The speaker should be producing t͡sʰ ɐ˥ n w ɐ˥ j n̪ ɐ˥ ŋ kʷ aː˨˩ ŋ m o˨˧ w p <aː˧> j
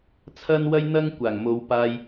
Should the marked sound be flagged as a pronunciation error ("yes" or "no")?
no